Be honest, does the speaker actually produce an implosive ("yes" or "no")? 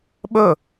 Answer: yes